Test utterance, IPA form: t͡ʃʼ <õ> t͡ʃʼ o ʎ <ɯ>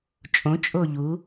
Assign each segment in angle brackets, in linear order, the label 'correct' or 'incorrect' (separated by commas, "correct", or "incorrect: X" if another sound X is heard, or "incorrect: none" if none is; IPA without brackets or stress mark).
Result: correct, incorrect: u